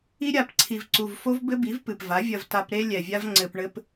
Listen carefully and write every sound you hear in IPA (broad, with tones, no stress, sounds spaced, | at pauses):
i˦ ɾʲ a˧ p ǀʰ i˨ v ǀ u˨ v f o˦ v b ɘ˦ b i˨˦ v p ɨ˨ p v a˨˦ vʲ ɐ˧ v t a˧ p ɾ e˦ lʲ ɛ˨ vʲ a˦ v ŋ͡ǀ ɘ˧ p ɳ ɘ˦ p